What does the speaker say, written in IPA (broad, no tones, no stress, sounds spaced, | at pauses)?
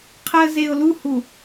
qʰ əː z e ʊ̯ l u h u